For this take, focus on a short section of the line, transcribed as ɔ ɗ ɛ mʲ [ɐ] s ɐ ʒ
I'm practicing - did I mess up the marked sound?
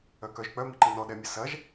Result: no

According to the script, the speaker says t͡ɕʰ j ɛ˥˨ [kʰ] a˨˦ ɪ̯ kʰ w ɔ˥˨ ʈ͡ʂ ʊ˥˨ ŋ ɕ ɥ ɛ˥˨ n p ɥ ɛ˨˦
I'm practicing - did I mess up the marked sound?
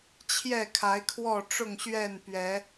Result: no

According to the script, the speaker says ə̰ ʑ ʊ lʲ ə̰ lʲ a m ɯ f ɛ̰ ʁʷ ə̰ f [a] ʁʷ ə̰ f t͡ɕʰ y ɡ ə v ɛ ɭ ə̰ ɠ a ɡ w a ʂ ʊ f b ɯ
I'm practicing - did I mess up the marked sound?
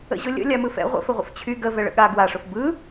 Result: yes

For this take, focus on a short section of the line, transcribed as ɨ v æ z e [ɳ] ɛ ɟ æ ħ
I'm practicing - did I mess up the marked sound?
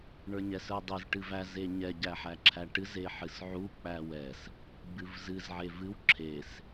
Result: yes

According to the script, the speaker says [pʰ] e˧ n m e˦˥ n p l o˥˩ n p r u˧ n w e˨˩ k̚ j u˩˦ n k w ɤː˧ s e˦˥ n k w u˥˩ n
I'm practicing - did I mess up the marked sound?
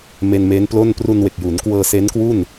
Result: yes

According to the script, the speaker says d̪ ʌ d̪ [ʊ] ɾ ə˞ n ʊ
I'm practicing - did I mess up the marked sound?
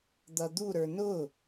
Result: yes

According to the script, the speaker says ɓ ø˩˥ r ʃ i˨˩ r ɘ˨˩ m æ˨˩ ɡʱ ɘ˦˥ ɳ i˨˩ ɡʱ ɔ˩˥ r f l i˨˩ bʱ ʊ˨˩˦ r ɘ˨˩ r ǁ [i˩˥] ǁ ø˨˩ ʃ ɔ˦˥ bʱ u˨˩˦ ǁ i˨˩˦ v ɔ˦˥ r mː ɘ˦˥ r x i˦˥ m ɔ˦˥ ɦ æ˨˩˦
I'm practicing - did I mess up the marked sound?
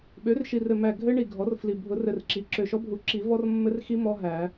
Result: no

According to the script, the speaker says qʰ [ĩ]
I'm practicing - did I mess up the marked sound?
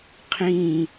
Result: no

